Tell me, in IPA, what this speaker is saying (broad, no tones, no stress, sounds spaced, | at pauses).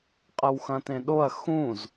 qʼ ɐ w x ɐ̃ t ẽ ɗ o ɐ̯ x ũ z